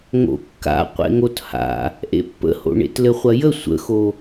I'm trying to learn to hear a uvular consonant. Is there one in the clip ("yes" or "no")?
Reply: yes